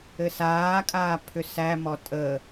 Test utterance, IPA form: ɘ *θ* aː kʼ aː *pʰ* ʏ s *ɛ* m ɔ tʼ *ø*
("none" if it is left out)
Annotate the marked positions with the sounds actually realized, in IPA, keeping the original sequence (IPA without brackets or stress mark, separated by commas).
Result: s, pʰ, æ, ə